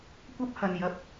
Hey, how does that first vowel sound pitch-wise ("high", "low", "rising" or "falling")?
high